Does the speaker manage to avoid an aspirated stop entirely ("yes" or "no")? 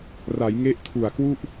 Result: no